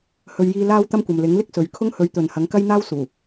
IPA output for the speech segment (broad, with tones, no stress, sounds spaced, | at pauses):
h ɵ˨ ɥ j iː˧ l aː˥ w t̪ ɐ˥ m kʷ ɐ˨ m l ɪ˨˥ ŋ l ɪ˥ k̚ s ɵ˨ ɥ kʰ ʊ˥ ŋ h ɵ˨˥ ɥ t̪ ɵ˨ n h ɐ˨˥ ŋ k ɐ˥ j n̪ aː˥ w s uː˨˩